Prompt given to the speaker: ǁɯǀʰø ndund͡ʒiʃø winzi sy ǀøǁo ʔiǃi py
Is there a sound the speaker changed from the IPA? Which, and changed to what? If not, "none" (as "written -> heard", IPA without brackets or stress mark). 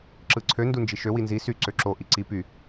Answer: ǃ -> ǀ